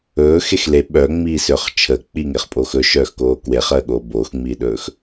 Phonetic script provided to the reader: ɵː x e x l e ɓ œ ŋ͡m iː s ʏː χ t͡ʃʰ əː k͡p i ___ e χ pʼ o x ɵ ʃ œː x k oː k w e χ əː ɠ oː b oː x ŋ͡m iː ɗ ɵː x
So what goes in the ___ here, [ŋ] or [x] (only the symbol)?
ŋ